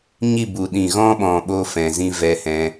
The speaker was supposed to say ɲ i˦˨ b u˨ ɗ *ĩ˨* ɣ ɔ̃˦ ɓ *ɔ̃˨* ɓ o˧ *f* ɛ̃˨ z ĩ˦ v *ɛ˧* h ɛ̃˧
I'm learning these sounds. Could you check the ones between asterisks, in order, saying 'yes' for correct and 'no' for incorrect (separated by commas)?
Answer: yes, yes, yes, yes